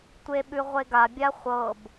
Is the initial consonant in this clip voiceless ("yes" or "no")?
yes